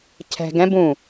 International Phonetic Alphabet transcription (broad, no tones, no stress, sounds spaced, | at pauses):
cʰ ɛ̤ ɡ ɛ̃ b ũ